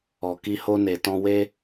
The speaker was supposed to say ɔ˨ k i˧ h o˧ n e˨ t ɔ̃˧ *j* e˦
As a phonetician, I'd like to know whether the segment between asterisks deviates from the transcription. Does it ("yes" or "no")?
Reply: yes